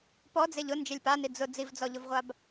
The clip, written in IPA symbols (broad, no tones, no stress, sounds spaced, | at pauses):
p ɔ d͡z e ʎ ʊ n d͡ʒ e lʲ p a n i d͡z ʊ d͡z i v d͡z ɔ ʎ ʊ v ʁʷ a b